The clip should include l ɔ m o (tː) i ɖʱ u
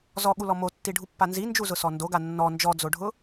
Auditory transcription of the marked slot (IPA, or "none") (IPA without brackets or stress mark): tː